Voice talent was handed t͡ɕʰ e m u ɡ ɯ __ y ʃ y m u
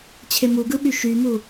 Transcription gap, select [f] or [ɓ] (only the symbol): ɓ